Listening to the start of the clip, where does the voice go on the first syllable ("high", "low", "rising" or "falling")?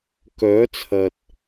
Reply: rising